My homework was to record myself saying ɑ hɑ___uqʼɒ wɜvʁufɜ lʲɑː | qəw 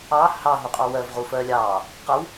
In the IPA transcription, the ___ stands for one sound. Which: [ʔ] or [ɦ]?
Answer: ɦ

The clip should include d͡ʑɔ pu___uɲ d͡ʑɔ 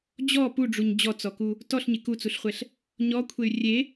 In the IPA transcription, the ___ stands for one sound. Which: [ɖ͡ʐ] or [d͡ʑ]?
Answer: ɖ͡ʐ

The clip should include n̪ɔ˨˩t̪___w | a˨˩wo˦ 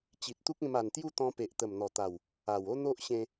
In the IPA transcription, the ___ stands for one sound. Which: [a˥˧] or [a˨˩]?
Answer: a˨˩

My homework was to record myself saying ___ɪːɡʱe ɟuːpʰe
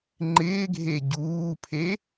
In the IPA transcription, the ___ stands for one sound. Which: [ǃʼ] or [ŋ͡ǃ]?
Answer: ŋ͡ǃ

